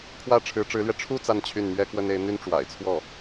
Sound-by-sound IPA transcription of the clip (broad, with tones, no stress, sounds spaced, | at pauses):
kʰ w ä˥˩ ʈ͡ʂʰ ɻ̩˧˥ ʈ͡ʂ ɻ̩˧˥ l ɥ ɛ˧ ʈ͡ʂʰ u˥˧ t͡s a˥˧ n t͡ɕʰ y˥˩ n m ɥ ɛ˥ k w ə˥ n e˧˥ ɪ̯ n̪ y˥ n ʈ͡ʂ w a̰˨˩ ɪ̯ t͡sʰ w ɔ˥˩